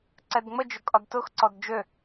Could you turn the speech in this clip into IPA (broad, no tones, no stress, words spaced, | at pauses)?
ǀɛdŋ͡mə d͡ʒʊkʼɒdtʊx ǀɔdd͡ʒø